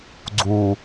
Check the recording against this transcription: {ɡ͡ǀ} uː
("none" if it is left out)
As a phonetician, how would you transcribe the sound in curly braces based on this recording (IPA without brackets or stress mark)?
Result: ɡ͡ǀ